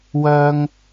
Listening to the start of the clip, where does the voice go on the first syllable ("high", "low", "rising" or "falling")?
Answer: high